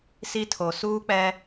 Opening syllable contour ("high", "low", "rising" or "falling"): high